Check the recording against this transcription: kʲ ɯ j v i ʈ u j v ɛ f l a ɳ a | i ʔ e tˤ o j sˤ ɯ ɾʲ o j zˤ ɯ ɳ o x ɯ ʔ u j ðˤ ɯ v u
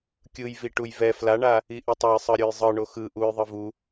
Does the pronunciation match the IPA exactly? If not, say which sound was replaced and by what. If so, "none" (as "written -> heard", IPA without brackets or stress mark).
none